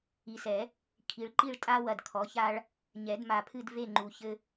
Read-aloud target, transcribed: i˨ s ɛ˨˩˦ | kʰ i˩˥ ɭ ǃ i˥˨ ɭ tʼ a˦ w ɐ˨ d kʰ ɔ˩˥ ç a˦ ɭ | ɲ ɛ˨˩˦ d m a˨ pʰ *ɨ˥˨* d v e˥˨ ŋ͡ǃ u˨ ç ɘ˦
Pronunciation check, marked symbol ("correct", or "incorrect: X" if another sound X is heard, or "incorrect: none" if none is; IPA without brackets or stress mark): correct